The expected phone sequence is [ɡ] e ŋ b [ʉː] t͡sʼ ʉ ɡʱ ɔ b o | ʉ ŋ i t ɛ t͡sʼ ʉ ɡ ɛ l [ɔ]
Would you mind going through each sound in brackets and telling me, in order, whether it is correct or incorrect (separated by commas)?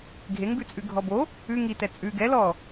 incorrect, incorrect, correct